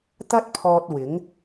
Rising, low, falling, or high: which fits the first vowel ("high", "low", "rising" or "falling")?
high